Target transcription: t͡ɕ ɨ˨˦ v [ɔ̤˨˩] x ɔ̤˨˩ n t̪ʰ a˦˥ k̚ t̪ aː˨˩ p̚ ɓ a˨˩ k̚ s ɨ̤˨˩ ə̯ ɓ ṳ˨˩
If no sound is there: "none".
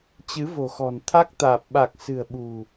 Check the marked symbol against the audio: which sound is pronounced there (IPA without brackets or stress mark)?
o̤˨˩